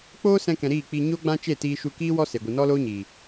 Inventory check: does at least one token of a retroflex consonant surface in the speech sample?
no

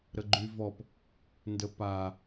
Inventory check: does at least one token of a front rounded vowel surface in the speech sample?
yes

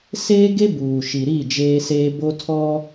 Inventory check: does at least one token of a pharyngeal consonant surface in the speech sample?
no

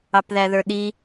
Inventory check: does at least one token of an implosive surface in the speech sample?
yes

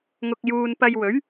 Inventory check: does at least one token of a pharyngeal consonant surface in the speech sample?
no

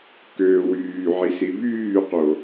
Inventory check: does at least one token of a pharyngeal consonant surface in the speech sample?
yes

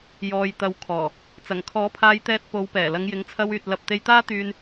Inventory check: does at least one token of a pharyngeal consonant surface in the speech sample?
no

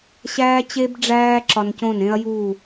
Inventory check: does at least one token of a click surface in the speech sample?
yes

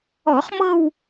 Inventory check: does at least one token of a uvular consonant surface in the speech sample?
yes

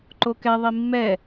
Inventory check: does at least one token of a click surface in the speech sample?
yes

